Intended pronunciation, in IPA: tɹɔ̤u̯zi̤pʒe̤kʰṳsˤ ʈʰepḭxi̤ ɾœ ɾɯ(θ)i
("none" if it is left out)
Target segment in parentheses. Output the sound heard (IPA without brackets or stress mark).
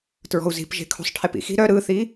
θ